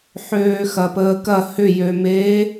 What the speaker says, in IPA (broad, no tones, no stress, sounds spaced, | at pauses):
ħ øː x ɐ p əː k ɐ h ʏ j ø m eː